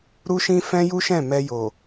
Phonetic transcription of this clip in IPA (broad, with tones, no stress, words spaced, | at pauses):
ɾu˦ʃĩ˦ fɛ̃˦ju˦ʃɛ̃˦˨ mɛ˧jo˨